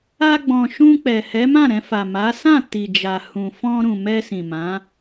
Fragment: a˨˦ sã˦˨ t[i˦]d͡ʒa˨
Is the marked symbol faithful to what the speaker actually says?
no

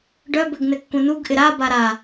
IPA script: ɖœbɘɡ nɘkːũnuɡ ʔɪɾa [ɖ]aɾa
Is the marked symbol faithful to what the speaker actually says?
no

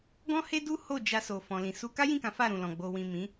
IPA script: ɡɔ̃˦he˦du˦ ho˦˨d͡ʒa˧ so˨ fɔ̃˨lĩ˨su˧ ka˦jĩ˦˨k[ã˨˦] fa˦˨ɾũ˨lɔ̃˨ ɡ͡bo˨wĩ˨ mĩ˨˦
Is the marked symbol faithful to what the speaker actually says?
yes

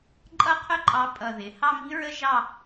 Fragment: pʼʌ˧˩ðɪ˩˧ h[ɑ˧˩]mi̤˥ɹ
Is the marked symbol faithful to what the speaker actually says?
no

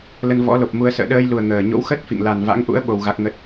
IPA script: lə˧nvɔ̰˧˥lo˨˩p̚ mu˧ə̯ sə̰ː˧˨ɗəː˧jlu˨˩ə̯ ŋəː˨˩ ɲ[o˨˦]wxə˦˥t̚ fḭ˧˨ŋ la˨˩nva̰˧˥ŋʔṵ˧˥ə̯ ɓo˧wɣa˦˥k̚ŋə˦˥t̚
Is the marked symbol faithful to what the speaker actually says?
no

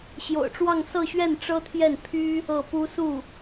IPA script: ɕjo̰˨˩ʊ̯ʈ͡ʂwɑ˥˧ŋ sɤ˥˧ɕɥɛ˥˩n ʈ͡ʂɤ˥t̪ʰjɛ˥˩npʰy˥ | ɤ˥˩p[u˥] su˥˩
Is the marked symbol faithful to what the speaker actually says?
yes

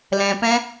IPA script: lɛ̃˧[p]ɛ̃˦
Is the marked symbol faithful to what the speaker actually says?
yes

